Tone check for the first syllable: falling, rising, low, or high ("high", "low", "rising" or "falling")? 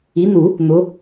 rising